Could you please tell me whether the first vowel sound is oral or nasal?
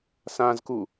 nasal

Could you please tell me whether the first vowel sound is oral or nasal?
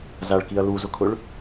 oral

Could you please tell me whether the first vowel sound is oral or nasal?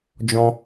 nasal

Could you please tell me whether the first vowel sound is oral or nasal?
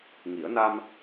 oral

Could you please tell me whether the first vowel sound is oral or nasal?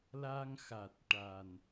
oral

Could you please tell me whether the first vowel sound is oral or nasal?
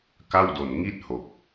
oral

